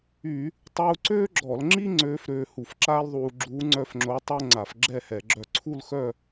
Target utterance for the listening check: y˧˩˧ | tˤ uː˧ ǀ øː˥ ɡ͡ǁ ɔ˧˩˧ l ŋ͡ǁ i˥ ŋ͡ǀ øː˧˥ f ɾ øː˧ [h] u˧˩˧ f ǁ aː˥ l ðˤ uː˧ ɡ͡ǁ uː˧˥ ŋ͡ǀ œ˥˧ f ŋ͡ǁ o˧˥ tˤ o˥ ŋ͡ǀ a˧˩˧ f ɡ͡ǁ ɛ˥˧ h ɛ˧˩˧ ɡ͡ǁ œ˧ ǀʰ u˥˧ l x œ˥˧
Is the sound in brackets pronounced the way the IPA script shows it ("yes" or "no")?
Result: yes